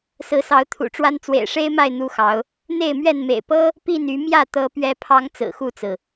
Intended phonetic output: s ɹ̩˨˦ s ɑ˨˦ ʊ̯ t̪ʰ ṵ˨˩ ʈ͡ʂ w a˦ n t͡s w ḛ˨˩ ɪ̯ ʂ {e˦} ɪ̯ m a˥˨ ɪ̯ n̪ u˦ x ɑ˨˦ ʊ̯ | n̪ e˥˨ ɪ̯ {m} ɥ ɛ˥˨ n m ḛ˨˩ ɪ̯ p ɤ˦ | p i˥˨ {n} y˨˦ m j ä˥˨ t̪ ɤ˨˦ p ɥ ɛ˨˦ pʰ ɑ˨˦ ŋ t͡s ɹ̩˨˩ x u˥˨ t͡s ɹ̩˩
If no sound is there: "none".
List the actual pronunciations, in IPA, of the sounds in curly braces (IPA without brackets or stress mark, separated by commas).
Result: e˦, m, n